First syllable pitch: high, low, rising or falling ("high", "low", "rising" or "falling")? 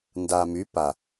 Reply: low